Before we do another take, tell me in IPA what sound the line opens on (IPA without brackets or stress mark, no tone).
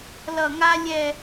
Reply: l